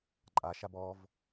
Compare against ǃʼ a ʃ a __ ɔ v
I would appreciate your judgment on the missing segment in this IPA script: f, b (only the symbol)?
b